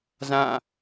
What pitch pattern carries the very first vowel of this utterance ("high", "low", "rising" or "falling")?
falling